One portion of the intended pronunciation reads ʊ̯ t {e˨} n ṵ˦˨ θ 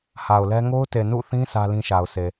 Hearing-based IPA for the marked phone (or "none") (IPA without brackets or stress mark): e˨